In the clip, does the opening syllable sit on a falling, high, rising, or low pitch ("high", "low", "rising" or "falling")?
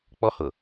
high